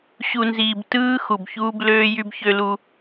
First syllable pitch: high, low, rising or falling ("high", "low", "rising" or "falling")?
low